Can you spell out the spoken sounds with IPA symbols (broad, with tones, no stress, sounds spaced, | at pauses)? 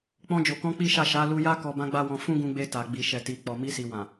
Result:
k͡p ɔ̃˧ d͡ʒ o˨ k ɔ̃˧ k͡p i˦ ʃ a˦˨ ʃ a˨˦ l u˧ j a˦ k ɔ˧ b ã˦ ɡ͡b a˦ w ɔ̃˧ f ũ˦ ɡ ũ˧ ɡ͡b e˧ t a˨ ɡ͡b i˨ ʃ ɛ˨ t i˨ k͡p ɔ˨ m i˧ s i˨ w ã˨